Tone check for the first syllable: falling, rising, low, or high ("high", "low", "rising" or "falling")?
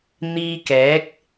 high